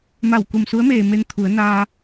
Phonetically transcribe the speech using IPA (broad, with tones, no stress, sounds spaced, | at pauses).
m a˧˩ w k u˧˩ m s u˧˥ ə̯ m eː˩ m e˧ n t̪ʰ u˩˧ ə̯ n aː˧